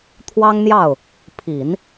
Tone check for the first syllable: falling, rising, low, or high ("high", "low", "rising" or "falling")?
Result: high